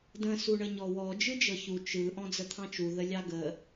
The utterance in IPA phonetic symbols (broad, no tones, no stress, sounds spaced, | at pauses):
d ə̃ s u ɳ ə ɲ ɔ w ɔ d͡ʒ ɯ d͡ʒ ɤ ç u t͡ʃ ɯ ʔ ɔ̃ d͡z ə t̪ʰ ɑ̃ t͡ʃ u ð ə lʲ ɑ ɡ ə